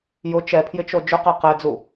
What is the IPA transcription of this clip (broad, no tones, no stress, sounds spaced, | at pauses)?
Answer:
j ʊ t͡ʃ ɛ pʰ j ɪ t͡ʃ o d͡ʒ ʊ q ɛ q ɛ d͡z u